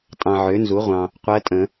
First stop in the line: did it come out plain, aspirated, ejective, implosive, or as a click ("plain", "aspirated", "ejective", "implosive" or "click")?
ejective